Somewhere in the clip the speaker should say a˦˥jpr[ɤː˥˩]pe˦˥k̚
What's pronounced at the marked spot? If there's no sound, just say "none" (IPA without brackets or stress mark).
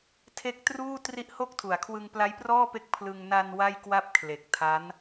ɔː˥˩